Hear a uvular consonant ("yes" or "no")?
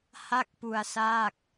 no